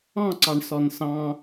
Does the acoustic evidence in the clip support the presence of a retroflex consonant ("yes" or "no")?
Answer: yes